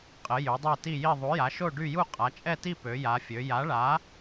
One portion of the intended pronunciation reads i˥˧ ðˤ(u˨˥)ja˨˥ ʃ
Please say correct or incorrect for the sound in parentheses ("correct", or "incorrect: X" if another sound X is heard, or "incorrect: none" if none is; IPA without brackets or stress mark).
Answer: correct